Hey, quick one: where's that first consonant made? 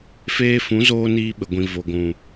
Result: lips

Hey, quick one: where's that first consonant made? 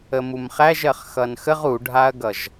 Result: lips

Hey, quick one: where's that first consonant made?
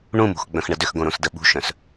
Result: retroflex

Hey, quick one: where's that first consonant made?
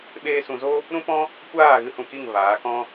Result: lips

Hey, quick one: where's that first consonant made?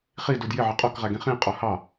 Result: uvula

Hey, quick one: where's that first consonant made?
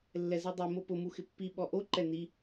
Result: tongue tip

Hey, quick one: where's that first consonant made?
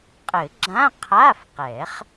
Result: uvula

